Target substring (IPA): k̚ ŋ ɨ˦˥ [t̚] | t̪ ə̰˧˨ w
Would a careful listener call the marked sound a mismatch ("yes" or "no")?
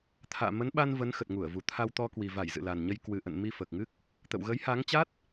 yes